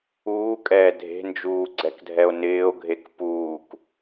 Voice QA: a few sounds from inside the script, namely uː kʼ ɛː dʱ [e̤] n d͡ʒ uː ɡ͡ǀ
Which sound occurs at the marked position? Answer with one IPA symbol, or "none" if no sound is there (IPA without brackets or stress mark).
e̤